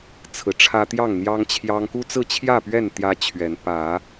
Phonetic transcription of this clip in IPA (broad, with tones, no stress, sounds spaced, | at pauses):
t͡sʰ ɹ̩˨˦ ʈ͡ʂʰ ä˦ t̪ j ɑ˥˨ ŋ n̪ j ɑ˦ ŋ t͡ɕʰ j ɑ˦ ŋ k u˦ t͡s ɹ̩˥˨ t͡ɕʰ j ä˥˨ p ɥ ɛ˥˨ n t̪ j ä˦ t͡ɕʰ ɥ ɛ˨˦ n p ä˨˦